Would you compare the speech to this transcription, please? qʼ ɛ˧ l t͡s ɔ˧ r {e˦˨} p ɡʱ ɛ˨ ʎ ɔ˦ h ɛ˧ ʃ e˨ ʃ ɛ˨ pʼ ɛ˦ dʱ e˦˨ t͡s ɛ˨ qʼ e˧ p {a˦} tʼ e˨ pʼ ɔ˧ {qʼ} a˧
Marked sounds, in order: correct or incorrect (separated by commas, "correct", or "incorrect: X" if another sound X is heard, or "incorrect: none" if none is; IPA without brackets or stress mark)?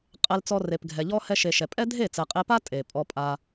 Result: incorrect: e˨, correct, incorrect: pʼ